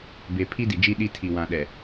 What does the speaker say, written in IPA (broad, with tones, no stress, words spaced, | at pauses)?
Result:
be˨pʰi˦di˨d͡ʒi˦ ɗi˦ tʰi˨wã˨ɗɛ˨